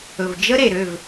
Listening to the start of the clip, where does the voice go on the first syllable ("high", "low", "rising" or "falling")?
low